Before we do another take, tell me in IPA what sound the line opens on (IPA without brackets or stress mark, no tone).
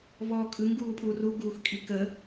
v